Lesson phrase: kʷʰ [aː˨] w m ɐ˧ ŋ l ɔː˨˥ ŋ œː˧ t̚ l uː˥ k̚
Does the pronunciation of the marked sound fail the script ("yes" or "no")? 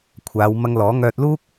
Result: yes